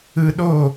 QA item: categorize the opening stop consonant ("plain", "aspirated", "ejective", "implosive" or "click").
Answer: implosive